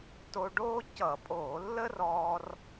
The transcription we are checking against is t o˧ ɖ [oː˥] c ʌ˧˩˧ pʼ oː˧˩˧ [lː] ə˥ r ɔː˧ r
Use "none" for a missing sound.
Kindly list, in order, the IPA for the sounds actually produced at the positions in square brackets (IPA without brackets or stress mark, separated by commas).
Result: oː˥, lː